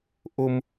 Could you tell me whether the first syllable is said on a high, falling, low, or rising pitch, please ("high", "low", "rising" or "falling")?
high